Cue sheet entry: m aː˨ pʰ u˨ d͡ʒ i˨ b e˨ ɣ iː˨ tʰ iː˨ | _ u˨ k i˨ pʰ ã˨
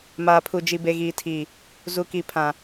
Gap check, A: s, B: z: B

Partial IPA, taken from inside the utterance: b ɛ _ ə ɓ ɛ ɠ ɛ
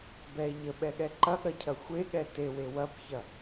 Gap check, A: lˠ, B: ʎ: B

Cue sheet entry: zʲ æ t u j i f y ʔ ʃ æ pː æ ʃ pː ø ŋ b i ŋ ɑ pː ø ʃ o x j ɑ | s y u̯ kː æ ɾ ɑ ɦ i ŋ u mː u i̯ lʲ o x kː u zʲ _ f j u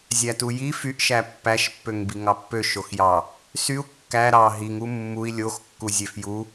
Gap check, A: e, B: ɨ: A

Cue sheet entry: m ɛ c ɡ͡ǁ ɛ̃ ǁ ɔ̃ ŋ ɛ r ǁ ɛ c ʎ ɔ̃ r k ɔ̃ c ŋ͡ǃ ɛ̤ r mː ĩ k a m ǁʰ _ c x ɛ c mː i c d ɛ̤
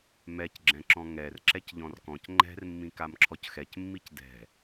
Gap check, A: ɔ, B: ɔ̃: A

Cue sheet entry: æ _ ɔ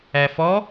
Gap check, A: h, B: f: B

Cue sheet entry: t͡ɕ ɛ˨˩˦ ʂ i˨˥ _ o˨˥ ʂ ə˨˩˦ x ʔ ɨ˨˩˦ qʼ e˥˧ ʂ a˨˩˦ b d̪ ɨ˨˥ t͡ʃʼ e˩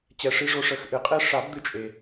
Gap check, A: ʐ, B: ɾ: A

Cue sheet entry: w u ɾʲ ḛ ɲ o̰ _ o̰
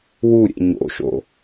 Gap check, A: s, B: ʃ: B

